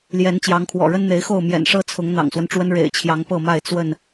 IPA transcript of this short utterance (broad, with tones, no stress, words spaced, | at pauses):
ljɛ˨˦nt͡ɕjɑ˨˦ŋkʰwɔ̰˨˩ ɻə˦nn̪e˨˦ɪ̯xo˥˨ʊ̯ mjɛ̰˨˩nʂɤ˦ t͡sʰʊ˨˦ŋ n̪ɑ̰˨˩ŋswə˦nʈ͡ʂwə˦n ɻḛ˨˩ɪ̯t͡ɕʰjɑ˨˦ŋ pɤ˥˨ma˥˨ɪ̯ t͡swə˥˨n